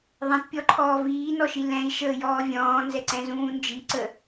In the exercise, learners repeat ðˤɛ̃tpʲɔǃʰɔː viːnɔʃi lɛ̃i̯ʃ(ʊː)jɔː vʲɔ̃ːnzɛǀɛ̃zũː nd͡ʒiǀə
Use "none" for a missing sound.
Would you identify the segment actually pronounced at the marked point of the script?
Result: əː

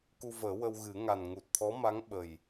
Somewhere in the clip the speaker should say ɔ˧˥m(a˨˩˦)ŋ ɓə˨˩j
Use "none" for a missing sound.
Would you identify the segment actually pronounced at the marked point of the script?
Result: a˧˥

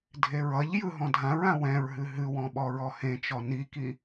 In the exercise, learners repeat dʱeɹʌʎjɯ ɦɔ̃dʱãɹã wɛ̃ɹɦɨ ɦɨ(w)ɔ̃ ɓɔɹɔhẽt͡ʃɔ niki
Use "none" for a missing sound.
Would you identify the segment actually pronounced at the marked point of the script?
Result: w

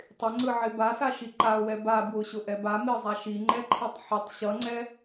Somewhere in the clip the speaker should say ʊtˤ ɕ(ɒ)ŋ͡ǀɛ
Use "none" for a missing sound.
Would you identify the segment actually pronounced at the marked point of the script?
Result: ʌ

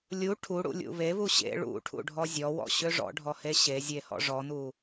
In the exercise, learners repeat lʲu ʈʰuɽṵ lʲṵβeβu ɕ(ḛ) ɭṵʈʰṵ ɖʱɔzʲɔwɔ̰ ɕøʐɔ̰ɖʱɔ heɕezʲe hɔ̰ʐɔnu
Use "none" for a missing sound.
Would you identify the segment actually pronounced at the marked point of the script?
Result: ḛ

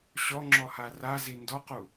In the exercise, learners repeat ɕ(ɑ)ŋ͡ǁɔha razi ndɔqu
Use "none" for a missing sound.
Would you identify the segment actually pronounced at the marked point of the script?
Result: ɔ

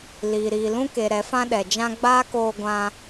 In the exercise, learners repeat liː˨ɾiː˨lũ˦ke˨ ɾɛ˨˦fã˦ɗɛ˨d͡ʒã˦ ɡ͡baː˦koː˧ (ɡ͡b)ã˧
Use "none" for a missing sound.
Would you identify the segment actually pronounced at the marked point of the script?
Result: ɡʷ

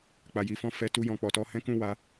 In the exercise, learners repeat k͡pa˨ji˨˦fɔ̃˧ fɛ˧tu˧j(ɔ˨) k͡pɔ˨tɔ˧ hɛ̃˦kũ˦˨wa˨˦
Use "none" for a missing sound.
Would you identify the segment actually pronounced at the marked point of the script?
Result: ɔ̃˨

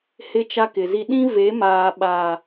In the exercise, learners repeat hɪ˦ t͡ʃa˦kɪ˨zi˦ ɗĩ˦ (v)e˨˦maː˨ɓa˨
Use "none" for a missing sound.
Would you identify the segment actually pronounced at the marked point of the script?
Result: v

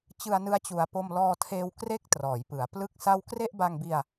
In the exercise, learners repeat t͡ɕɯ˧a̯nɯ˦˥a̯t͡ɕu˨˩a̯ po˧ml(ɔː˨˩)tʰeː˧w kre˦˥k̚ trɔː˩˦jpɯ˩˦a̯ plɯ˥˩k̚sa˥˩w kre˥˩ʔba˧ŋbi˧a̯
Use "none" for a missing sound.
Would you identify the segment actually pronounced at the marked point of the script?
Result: ɔː˧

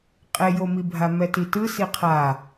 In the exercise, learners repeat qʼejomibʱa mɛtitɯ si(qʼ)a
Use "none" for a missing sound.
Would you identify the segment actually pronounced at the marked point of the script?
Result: qʰ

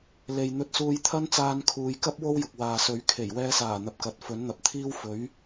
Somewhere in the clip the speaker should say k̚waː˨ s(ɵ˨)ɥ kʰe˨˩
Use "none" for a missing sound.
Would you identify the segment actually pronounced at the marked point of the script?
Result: ɵ˨˧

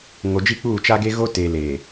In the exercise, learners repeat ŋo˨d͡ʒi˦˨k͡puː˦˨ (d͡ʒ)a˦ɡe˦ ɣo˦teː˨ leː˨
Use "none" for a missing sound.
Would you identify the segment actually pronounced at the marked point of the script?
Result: t͡ʃ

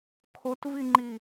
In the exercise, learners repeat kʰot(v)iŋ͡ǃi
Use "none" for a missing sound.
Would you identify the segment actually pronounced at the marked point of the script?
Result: v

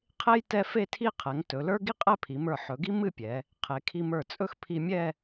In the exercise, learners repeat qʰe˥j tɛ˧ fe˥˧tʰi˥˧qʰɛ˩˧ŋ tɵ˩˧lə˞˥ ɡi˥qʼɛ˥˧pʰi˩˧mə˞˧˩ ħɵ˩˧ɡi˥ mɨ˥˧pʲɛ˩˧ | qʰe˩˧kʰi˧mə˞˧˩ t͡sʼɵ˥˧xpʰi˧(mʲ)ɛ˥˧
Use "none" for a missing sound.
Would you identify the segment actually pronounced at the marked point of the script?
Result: mʲ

